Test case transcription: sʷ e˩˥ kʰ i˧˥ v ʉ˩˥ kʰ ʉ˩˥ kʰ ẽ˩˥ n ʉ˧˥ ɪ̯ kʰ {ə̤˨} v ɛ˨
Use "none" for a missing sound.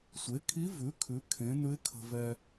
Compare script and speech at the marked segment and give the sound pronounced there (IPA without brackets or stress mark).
ə̤˨